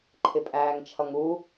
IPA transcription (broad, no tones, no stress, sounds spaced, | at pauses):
ǃʰ ɪ pʼ æː ŋ t͡ʃʰ ʌ ŋ u